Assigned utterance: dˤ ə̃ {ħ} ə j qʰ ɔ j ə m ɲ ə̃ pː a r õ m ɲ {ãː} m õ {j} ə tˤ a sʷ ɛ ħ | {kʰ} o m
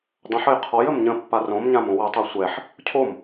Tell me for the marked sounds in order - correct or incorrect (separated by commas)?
correct, incorrect, incorrect, incorrect